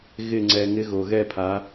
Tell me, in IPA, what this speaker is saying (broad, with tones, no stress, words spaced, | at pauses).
ɣɪ˨˩ ŋ͡ǀɛ˨˩ŋɪ˨˦ ɣo˨˩ ɣɛ˥˩pʰa˨˦